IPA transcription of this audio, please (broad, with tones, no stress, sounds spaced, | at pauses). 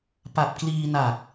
p a˨˩ p̚ k l iː˧ n a˨˩ k̚